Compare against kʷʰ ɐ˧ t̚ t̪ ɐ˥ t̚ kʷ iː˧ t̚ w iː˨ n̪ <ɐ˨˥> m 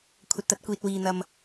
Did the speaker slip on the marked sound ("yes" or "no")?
yes